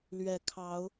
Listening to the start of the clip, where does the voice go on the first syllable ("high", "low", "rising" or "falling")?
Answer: low